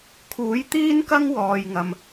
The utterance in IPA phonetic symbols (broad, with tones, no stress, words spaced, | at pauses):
kʰuː˨˥jt̪iː˥nkɐ˥ŋ wɔː˨jŋɐ˨m